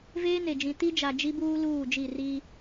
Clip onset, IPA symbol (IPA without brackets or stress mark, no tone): v